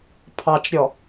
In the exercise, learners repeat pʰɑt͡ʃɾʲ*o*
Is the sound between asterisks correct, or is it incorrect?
incorrect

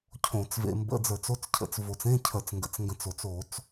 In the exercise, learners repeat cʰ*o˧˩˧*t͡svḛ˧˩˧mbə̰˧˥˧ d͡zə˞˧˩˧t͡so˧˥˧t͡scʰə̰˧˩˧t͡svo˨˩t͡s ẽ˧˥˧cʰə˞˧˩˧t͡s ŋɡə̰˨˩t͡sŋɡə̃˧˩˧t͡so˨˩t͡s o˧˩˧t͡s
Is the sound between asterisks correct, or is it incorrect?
incorrect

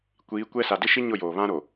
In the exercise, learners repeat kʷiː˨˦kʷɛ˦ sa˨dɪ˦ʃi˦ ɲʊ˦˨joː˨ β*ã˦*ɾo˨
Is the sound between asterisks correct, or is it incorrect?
correct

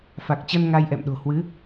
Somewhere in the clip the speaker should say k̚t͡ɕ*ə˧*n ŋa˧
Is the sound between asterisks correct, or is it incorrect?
correct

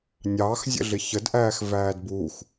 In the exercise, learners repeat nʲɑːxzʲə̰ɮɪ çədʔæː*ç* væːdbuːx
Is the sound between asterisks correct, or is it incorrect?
incorrect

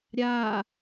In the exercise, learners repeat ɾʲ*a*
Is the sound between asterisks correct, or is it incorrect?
incorrect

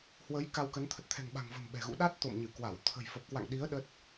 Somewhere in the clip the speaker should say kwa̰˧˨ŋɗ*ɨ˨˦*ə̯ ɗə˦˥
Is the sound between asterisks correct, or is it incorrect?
incorrect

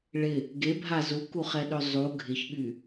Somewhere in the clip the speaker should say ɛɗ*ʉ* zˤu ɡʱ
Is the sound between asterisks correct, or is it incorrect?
incorrect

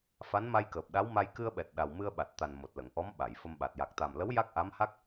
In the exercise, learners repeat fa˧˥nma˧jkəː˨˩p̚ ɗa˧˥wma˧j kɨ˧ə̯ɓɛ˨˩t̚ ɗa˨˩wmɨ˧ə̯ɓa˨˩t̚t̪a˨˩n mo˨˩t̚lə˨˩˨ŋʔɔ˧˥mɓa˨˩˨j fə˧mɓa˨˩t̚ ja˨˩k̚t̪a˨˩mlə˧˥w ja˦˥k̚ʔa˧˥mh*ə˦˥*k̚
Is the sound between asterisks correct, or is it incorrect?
incorrect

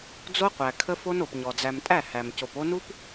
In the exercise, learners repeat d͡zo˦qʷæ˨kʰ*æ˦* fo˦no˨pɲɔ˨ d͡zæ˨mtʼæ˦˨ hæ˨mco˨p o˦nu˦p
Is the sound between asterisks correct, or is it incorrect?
incorrect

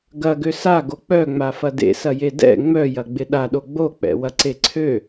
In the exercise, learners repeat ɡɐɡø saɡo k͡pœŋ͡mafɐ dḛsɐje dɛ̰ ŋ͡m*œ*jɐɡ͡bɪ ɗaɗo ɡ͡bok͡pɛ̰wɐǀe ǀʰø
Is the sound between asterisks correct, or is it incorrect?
correct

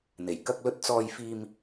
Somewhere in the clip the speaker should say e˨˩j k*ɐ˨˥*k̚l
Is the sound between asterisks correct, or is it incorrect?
incorrect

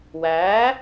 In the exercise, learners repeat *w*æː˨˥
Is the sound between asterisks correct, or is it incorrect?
correct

